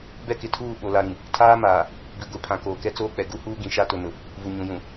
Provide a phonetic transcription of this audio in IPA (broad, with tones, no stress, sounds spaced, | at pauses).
b ɛ˦ k ɪ˨ tʰ uː˦˨ ɓ o˨ l a˨ ɾ ĩ˨ | tʰ aː˦ m aː˨ | b i˨ ɡʷ i˨ pʰ ã˨ k oː˨ k ɛ˦ t͡s oː˦ k͡p ɛ˨ ɡ u˦ h uː˦ ɡ ĩ˨ ʃ a˦ t ʊ˨ n ʊ˨ | v u˨ ɲ ũ˨ j ũ˨